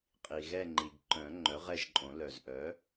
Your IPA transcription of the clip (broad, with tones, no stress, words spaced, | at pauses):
qʼi˩ɣɛ˦˨ŋ͡ǃi˩ɡ ǃœ̃˨˩˦ŋ͡ǃœ˩˥ʁɛ˦˨ʒǃʼõ˨˩˦ lœ˩zʔœ˩˥